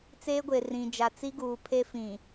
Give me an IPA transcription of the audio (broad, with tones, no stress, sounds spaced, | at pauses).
t͡s eː˦ ɡʷ e˨ r ĩ˨ d͡ʒ a˨ t͡s i˦ ɡ uː˨ pʰ e˦ f ĩ˨